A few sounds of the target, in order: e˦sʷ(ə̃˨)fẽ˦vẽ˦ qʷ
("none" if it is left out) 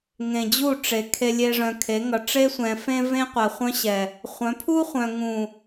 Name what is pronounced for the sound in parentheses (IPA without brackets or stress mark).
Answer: ɛ̃˨